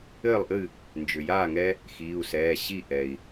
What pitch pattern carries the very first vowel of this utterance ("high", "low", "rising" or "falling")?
falling